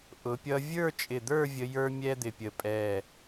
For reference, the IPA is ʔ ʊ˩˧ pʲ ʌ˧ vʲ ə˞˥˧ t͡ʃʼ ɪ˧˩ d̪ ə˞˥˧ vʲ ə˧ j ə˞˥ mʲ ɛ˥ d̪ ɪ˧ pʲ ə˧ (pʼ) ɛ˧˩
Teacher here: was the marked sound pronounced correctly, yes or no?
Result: yes